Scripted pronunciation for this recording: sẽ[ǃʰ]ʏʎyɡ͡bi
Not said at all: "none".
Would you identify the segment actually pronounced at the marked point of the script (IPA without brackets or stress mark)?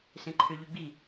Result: ǃʰ